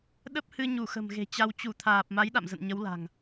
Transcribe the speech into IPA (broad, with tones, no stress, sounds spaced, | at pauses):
ɗ ə˦˥ p̚ h ɨ˧ ɲ u˧˩ x ə̤˨˩ m ɣ e̤˨˩ t͡ɕ a˧ w t͡ɕ u˧˩ t̪ʰ aː˨˩ p̚ m a˨˦ j ɗ a̰˧˨ m z ə̰˧˨ n ɲ ə˨˦ w l a̤˨˩ ŋ